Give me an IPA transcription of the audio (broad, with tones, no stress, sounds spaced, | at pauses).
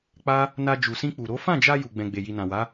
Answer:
k͡p a˦ | n a˧ d͡ʒ u˨ s ĩ˧ k͡p u˨ ɾ o˨˦ f ã˦˨ d͡ʒ a˧ j u˨ ɡ͡b ɛ̃˨ ɡ͡b e˨ j i˨ n ã˨ w a˨˦